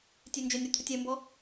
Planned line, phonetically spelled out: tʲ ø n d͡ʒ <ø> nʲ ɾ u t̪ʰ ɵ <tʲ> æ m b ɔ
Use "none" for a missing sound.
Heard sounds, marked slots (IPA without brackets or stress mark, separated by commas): ø, tʲ